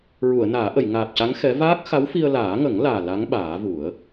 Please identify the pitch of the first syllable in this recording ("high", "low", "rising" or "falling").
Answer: low